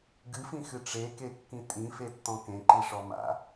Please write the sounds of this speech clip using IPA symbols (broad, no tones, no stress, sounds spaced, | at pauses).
ɡ ɨ f ĩ x ɨ ʈ͡ʂ e k e kː ĩ tʼ ĩ f e tː ɔ̃ k ẽ ǃ i ʂ ɔ m a̰